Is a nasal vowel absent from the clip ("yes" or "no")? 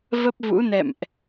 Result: yes